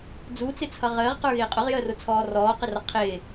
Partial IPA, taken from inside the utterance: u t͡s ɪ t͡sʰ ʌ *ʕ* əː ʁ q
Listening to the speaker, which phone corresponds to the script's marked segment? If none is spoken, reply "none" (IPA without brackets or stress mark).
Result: ʁ